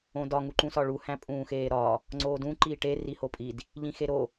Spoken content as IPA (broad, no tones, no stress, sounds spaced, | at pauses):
õ d ɒ ŋ u ǃ ũ s ɒ ɭ u h æ̃ pʼ ũː x eː ɾ ɒ | ŋ͡ǀ oː d ũ ǃ iː ʈ e r i h o pʼ i d | ʎ ĩ x e ɾ o